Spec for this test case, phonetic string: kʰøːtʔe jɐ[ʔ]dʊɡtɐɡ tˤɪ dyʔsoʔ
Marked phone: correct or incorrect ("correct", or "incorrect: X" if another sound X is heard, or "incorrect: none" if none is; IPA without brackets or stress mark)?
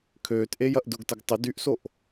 correct